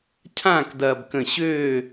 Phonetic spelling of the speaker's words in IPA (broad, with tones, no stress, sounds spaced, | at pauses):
cʰ ãː˥˧ k d ɐː˧ b k ə̃˧˩ ɕ øː˥˧